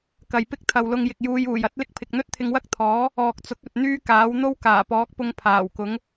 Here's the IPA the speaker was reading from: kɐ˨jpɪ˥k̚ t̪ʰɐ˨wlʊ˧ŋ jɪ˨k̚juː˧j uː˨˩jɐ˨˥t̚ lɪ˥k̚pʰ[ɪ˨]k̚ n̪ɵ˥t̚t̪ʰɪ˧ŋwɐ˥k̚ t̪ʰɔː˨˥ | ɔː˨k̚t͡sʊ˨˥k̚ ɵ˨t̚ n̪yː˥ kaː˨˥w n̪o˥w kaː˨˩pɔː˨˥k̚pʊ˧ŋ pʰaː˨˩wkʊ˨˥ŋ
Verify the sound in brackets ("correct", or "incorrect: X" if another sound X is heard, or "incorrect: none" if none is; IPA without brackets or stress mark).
correct